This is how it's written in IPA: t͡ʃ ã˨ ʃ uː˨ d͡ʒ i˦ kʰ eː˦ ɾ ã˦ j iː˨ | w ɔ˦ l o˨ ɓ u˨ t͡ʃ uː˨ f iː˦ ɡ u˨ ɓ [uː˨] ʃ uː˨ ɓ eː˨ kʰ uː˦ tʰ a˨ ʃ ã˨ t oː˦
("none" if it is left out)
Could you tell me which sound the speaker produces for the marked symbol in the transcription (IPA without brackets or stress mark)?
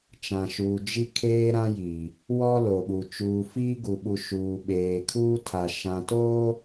u˨